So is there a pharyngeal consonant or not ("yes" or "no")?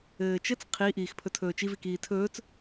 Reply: no